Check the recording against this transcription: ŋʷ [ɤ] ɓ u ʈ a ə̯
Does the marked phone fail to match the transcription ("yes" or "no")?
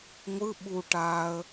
yes